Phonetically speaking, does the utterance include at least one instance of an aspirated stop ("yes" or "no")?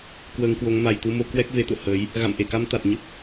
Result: no